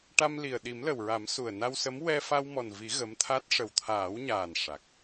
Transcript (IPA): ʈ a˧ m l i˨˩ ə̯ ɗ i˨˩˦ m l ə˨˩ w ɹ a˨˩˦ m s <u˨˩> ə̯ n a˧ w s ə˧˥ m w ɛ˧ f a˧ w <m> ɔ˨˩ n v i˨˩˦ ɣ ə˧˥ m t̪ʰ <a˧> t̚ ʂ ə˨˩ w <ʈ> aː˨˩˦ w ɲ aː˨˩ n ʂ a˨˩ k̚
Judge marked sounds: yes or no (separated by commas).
yes, yes, no, no